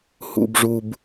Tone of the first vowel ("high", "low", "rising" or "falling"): low